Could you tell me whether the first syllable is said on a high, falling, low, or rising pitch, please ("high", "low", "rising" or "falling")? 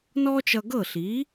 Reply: high